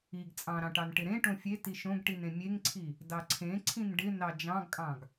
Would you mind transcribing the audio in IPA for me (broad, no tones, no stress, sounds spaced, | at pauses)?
i ɡ t͡sʼ ɑ̃ ɾ ɑ̃ ʈ ɑ n ʈ ɪ ɾ ẽ ʈ õ fʲ e t i ʃ õ ɡ ʈ i n ẽ mʲ e ŋ ǀʰ i | d ɑ ǀʰ ẽ ǀʰ ĩ n ɖ ɪ n ɑ d͡ʒ ɑ̃ ɡ kʼ ɑ̃ ɡ